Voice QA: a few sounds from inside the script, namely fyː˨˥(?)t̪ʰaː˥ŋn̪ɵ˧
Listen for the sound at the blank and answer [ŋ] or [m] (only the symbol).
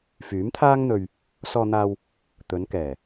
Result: m